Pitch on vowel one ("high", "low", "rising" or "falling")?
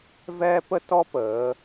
high